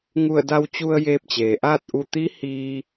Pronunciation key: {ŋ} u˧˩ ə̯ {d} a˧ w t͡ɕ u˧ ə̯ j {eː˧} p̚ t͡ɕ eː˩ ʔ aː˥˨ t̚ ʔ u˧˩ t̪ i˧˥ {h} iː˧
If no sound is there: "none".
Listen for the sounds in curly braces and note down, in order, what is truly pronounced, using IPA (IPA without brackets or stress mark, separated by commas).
ŋ, d, eː˧, h